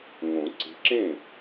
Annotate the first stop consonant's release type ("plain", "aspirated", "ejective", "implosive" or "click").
click